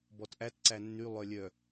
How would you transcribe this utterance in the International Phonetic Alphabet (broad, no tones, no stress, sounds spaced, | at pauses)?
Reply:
b ɔ t ʔ æ t ǀ æ nː y lˠ œ lʲ œ